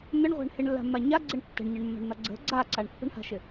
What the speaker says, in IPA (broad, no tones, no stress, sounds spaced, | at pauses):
n̪ ə ɳ ʁʷ a̤ ɳ h ɪ ɳ lː a̤ mː a ɲ a ɡ͡ǀ ɪ ɳ tː ə̤ ɳ ɲ ə ɳ mː a̤ ɳ n̪ a ɡ͡ǀ ə̤ ɡ͡ǀ a ǀ a ɳ pː ə̤ ɳ h a̤ ʃ ɪ